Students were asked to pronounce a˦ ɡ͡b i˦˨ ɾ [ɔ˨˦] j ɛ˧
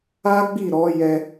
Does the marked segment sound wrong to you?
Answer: no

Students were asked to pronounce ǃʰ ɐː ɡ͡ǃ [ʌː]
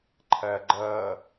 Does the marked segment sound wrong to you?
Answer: no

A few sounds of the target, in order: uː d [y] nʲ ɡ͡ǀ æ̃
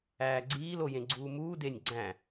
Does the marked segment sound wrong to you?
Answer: yes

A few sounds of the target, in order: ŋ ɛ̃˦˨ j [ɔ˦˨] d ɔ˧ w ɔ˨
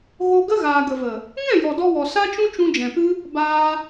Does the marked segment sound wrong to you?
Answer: yes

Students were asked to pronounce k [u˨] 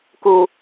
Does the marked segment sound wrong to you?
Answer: no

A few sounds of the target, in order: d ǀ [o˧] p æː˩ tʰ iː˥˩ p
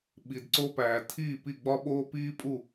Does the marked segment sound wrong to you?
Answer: no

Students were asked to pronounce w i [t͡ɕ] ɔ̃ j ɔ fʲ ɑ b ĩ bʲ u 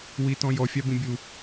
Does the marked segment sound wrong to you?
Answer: yes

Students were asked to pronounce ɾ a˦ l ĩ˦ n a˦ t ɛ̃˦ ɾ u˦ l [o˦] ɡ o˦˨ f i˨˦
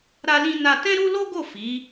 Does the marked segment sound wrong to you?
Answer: no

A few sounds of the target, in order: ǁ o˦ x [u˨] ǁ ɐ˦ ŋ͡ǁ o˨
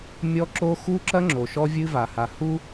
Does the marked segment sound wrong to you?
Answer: yes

